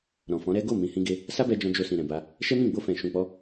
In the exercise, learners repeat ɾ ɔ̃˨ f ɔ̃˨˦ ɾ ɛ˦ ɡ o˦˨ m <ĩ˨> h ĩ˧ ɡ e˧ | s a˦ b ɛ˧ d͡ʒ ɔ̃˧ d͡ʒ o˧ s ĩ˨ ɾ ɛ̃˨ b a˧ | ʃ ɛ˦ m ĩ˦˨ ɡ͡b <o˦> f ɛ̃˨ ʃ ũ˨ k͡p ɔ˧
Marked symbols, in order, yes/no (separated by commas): yes, no